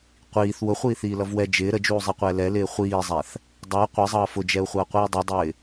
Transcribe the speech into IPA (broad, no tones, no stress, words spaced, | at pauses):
qʷiːθ wʊχʷiːθiːlʌv wɛ d͡ʒɪː ɾəd͡ʒuːzˤiqʷɛː lɛlɪː χʷiːzˤæθ | dˤʌː qʷizˤʌː fʊd͡ʒɛu̯χʷʌːqʷiː dˤudˤɪː